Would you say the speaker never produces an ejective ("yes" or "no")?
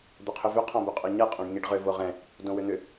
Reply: no